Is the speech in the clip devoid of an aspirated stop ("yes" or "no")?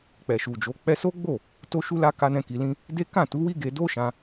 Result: yes